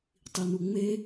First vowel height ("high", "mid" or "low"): high